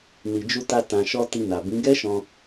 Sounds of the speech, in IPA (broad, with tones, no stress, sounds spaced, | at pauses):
n i˨ d͡ʒ u˧ t a˧ t ã˨ ʃ ɔ˧ t i˧ n a˨ b ĩ˨˦ ɡ ɛ˦ ʃ ɔ̃˧